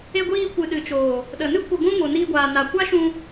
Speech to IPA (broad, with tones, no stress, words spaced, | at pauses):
e˧ɡʷiː˧kʷɨ˨ ɗɨ˨t͡ʃoː˨ | ɗə˨nɨ˦ kʷə˧ɡʷũ˦ ŋo˨niː˧ɡʷaː˨ na˨ kʷa˦ʃũ˧